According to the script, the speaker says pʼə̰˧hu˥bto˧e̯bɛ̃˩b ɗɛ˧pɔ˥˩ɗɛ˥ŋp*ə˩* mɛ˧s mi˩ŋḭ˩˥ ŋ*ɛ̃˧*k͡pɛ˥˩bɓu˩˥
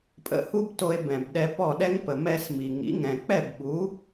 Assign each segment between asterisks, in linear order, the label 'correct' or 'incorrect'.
correct, incorrect: ɛ̃˩

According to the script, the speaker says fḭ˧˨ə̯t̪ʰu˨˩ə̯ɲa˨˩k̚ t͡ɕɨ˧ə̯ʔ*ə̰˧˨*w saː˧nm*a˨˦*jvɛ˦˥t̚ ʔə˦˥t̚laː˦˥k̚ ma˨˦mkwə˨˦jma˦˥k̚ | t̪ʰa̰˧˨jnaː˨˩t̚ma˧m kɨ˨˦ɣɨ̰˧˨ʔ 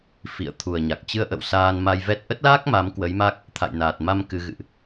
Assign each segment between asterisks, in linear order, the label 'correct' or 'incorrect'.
correct, incorrect: a˧

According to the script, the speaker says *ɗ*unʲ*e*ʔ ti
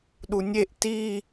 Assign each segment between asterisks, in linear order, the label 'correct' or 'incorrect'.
correct, correct

